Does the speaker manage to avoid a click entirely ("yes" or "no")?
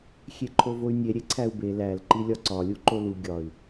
no